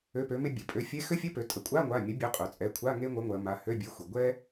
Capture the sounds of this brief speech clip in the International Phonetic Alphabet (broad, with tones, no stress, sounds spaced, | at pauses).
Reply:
ø˧˥˧ p ø˨˥ m e˥ bʲ e˩˧˩ pʼ ø˨˥ fʲ e˧˥˧ x ø˥ fʲ e˧˥˧ p ø˩˧ tʼ ə˩˧ kʷʼ a˧˥˧ ŋʷ a˩˧˩ mʲ ə˨˥ bʲ ø˨˥ qʼ ø˩˧ t͡sʼ ɛ˩˧˩ kʷʰ a˧˥˧ ŋ e˥ ŋʷ ə˨˥ ŋʷ ɜ˩˧ m a˩˧˩ h ø˧˥˧ bʲ e˨˥ xʷ e˩ ɡʷ ɛ˥